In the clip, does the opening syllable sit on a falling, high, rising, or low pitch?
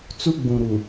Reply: high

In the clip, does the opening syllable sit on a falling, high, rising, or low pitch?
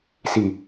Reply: low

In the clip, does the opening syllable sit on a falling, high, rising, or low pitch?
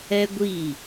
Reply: high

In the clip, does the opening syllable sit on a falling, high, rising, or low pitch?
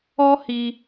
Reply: high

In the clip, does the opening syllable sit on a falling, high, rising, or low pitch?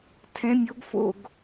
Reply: rising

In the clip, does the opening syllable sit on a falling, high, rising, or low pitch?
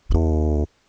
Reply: low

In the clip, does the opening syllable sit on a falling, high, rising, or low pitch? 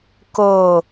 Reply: low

